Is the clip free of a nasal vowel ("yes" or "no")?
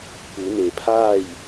yes